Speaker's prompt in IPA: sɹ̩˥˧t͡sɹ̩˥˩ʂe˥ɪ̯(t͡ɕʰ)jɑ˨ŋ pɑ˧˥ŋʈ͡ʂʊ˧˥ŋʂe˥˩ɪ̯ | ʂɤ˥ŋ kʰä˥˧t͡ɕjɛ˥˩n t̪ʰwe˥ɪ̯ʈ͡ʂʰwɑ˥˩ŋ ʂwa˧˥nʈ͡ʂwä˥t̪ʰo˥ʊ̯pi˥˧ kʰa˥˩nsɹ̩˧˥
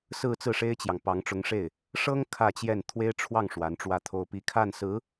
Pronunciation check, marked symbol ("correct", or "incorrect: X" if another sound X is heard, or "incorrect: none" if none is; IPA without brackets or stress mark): incorrect: t͡ɕ